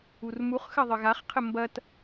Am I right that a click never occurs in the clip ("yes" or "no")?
yes